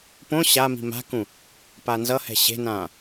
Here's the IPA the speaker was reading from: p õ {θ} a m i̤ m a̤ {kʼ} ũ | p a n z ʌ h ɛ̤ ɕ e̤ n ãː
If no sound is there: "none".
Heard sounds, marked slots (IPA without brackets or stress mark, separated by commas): ɕ, k